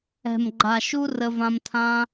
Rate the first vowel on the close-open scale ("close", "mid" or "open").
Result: mid